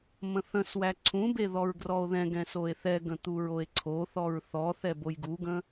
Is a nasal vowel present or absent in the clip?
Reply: present